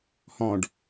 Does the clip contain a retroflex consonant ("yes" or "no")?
yes